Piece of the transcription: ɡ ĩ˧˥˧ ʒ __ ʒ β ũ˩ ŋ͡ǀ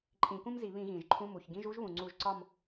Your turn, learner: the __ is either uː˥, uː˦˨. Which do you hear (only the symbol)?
uː˥